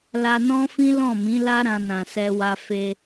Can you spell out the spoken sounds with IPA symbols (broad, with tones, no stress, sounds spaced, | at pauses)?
l a˧ n ɔ̃˦ f ĩ˦ l ɔ̃˦˨ m ĩ˨˦ l a˦ ɾ ã˧ n ã˨ s ɛ˧ w a˧ f e˧